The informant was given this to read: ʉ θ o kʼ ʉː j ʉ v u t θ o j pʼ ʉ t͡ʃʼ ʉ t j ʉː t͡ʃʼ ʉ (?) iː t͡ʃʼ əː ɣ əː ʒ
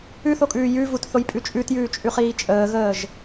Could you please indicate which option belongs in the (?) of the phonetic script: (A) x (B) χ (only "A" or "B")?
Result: B